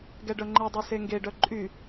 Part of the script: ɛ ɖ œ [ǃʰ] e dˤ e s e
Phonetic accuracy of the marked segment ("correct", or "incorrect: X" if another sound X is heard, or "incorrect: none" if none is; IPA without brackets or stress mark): incorrect: ŋ͡ǃ